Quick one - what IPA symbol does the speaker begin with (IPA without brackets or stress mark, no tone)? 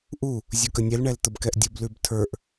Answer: ʔ